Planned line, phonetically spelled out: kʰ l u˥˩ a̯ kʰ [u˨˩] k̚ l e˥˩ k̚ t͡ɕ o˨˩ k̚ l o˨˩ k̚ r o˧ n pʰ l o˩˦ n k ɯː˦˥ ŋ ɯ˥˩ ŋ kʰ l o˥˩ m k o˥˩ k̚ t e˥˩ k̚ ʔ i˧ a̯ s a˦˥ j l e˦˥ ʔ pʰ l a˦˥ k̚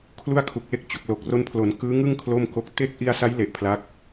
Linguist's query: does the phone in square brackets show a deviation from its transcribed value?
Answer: no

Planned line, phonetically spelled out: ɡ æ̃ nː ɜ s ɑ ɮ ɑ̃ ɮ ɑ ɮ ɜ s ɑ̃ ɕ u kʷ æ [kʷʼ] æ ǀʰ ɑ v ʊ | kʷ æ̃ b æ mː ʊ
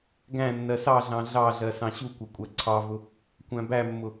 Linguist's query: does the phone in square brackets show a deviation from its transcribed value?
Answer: no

